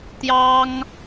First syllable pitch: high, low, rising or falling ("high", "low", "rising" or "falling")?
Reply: high